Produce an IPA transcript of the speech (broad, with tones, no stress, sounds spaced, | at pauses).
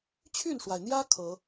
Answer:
t͡ɕʰ y˥˩ n ʂ w a˩ ɪ̯ n̪ j ä˥ kʰ ɤ˨˩˦